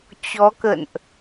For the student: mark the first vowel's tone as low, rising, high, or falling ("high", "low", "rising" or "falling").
rising